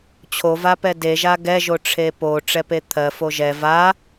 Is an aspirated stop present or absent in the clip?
present